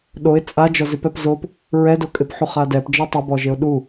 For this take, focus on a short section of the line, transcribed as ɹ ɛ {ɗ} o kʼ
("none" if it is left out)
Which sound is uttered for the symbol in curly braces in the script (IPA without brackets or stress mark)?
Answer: d